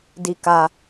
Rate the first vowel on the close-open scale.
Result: close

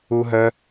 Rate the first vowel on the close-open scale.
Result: close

